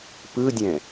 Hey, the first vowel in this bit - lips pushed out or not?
no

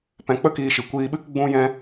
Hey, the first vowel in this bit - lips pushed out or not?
no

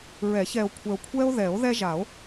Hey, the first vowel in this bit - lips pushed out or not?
no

